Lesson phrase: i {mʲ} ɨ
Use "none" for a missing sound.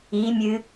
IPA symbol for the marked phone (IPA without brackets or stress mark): mʲ